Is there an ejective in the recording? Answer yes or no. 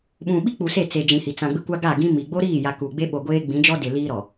no